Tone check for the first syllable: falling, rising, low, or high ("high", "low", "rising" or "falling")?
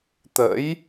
rising